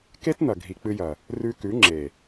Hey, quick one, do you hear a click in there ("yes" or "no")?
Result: yes